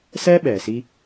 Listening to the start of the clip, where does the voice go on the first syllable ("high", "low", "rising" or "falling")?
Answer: high